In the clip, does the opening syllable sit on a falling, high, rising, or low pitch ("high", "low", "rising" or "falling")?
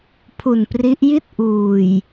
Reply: low